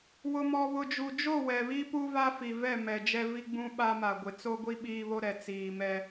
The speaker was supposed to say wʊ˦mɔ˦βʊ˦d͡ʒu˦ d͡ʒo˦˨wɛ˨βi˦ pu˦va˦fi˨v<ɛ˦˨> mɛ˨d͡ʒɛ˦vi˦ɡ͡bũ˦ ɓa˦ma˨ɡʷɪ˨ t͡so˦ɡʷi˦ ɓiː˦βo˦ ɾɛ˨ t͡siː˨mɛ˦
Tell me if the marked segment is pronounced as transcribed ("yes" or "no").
yes